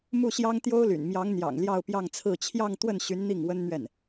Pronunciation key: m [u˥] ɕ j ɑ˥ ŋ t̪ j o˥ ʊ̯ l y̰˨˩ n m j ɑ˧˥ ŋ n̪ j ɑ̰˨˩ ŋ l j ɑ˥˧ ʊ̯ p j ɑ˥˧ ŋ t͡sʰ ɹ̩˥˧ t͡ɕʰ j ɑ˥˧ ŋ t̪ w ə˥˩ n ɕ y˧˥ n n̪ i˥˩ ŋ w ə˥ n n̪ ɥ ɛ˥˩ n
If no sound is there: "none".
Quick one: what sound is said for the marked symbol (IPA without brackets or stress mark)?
u˥˩